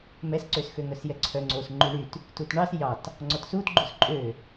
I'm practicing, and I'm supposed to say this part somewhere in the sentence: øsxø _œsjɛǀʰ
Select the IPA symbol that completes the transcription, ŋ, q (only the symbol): ŋ